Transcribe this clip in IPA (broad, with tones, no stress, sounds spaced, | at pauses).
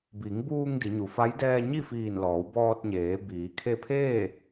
b i˩˧ ŋ b uː˧ ŋ d i˩˧ ɲ u˩˧ f a˧˥ j d ɛː˧ ɲ i˥˨ f iː˧˩ n l ɔː˩˧ w b ɔː˧ t̚ ɲ eː˩˧ b iː˩˧ kʰ e˧ pʰ eː˥˨